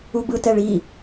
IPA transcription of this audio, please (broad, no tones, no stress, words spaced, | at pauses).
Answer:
ubɯt ɛɭi